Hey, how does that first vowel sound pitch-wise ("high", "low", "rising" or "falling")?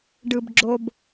low